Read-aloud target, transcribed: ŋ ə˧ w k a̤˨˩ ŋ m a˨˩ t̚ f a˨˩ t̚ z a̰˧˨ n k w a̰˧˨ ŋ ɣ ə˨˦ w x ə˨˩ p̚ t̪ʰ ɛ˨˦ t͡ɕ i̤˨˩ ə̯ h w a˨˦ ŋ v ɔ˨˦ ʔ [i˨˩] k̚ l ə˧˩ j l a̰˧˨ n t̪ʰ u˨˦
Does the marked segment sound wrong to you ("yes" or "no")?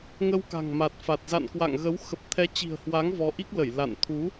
yes